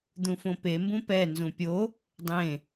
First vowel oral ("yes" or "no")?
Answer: no